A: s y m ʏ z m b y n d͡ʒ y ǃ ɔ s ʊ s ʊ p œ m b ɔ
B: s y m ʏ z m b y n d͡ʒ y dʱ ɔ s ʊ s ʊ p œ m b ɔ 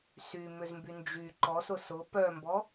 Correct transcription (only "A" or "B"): A